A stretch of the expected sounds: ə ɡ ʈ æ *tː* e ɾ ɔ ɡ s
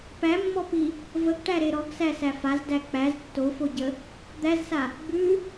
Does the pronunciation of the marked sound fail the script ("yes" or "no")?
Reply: yes